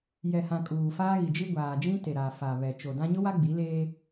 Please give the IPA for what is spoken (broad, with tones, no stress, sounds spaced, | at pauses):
j ɛ˨ h ã˨ kʼ uː˨ f aː˦ ɣ i˨ d͡ʒ i˦ ɡʷ aː˨ d͡ʒ ĩ˦ t e˨ ɾ a˨ f a˨ β ɛ˨ t͡ʃ o˨ d ã˦ ɲ ʊ˦ w a˦ ɡ͡b i˨˦ l eː˦